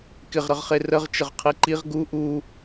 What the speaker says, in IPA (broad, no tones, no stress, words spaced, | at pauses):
kɪʁɾəʁχe rəʁ t͡ʃəʁqʰiǃiʁ ɡu ʔu